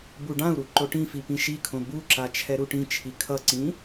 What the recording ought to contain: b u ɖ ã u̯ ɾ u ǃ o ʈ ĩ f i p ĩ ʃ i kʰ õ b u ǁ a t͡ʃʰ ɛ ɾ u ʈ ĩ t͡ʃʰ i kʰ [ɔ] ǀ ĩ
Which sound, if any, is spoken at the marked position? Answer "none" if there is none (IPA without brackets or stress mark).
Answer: ʌ